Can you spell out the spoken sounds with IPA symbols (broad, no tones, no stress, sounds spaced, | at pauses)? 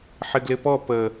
ħ ɪ ɡ l ɪ p ɔ p ə